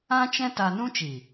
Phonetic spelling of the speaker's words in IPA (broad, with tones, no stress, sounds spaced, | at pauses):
ã˦ t͡ʃ ɛ̃˦ t a˧ n ũ˦ t͡ʃ i˨